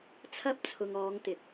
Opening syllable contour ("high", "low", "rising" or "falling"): high